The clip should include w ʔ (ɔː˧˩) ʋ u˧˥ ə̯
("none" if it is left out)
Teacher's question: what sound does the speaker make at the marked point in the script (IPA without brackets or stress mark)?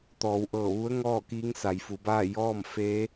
ɤː˧˩